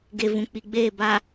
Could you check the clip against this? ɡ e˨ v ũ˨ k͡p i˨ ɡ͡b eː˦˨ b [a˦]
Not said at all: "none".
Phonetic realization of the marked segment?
a˨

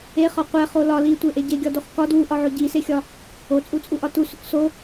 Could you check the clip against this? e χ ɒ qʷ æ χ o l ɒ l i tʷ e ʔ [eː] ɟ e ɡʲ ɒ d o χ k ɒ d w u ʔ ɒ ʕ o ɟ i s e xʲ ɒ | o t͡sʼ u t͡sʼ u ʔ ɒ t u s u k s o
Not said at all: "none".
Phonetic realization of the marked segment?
e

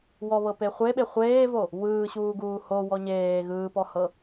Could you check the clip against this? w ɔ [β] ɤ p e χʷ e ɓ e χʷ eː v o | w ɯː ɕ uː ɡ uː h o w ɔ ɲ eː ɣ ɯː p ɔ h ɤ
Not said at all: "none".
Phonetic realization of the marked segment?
β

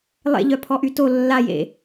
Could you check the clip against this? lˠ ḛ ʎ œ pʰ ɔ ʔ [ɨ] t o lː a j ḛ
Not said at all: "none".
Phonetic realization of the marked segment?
y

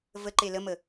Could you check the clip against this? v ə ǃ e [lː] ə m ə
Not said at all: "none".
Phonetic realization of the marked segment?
l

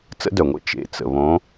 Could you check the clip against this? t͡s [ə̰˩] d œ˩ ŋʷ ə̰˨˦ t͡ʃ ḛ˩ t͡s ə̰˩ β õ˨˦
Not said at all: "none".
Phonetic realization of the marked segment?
ə̰˨˦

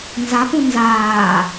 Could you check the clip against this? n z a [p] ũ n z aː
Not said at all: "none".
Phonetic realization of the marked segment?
p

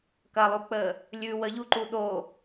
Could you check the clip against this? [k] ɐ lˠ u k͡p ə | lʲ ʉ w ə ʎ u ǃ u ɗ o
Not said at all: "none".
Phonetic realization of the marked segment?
k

